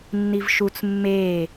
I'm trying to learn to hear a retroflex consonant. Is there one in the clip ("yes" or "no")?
no